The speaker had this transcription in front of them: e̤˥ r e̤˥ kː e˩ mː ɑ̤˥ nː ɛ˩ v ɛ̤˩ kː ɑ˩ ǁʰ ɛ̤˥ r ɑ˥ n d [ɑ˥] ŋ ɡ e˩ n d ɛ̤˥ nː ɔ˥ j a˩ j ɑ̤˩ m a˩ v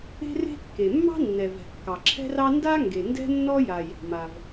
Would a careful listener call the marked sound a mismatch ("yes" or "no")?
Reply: yes